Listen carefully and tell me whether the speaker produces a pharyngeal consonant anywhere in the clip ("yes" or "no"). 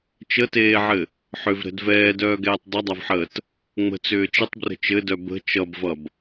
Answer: yes